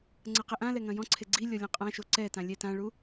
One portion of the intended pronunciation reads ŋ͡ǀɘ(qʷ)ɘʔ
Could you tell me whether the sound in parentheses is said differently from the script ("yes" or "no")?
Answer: yes